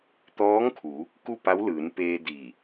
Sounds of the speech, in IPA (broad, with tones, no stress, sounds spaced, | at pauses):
t̪ ɔː˧˥ ŋ kʰ u˩˧ | k u˥˨ p a˧˥ w l ɯː˩˧ n p eː˧ d i˧˩